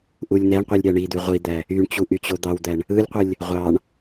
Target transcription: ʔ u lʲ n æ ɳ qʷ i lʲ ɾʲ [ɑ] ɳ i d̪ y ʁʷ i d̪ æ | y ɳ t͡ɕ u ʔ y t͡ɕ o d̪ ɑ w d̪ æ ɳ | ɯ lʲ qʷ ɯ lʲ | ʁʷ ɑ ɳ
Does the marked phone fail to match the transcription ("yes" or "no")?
no